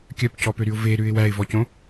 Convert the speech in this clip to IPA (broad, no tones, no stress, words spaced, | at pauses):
kʲœpcɔpøɾyʊ̯ veɾʉɪ̯ wæɪ̯vɔcõ